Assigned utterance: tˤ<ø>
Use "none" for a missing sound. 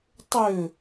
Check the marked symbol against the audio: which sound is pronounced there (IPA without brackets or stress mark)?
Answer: ø